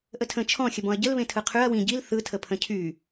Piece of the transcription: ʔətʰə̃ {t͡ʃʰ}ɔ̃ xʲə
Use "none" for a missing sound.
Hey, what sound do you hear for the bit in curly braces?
t͡ʃʰ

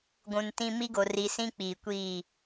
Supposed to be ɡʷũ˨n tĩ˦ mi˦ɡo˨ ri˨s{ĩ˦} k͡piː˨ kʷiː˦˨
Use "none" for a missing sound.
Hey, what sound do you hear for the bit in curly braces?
ĩ˦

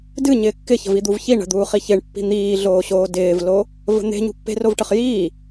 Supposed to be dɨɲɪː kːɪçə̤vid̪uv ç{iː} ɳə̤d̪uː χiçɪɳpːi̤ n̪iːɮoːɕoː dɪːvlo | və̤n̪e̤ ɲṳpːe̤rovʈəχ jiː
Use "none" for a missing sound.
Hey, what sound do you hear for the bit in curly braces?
i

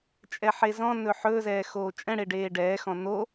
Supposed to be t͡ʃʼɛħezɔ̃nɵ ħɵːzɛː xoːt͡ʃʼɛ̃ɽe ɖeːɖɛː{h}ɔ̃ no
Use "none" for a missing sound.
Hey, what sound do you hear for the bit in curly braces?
x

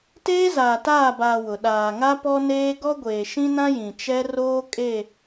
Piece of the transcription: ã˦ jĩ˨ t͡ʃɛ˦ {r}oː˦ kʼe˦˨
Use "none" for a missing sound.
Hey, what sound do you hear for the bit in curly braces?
r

